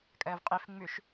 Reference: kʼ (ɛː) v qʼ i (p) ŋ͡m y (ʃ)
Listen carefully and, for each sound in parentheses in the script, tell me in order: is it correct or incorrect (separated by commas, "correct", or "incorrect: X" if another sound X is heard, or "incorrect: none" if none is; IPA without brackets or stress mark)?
correct, incorrect: f, correct